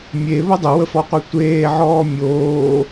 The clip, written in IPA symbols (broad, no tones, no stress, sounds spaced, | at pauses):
mʲ e β ə dˤ ə w ə f ɔ qʷ e tʷ eː ʕ ɔː mʲ oː